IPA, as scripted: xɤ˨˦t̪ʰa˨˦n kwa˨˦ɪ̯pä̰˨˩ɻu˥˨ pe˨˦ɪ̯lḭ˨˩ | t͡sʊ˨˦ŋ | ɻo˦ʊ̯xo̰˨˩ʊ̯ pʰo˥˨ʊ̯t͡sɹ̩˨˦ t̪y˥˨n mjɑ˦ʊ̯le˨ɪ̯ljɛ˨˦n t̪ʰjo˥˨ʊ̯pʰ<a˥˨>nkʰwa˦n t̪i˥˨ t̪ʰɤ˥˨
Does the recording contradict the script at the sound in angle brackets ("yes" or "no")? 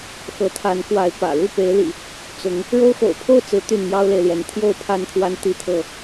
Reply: no